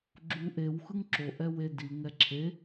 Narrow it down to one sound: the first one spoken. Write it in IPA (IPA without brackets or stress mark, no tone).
ɡ͡ǁ